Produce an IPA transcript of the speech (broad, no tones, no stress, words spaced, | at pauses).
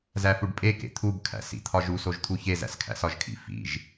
zæfuɖpʼe kḛt̪ʰubkʰæ̰ sḭt̪ʰɒʒusoʒ t̪ʰuçe zæ̰skʰæ̰sɒʒkʰḭ fḭʒ